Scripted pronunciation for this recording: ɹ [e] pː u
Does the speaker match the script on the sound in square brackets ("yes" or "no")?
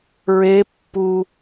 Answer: yes